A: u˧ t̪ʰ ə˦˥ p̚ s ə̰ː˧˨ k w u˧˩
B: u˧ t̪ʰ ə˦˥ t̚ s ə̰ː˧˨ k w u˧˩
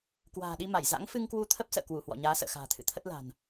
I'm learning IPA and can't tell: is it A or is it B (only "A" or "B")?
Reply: A